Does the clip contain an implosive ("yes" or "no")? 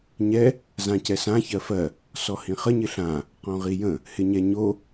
no